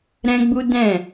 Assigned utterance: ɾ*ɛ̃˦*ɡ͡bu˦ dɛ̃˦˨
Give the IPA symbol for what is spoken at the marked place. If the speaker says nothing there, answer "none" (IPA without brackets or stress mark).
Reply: ɛ̃˦